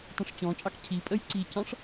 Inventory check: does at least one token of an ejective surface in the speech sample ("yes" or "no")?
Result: yes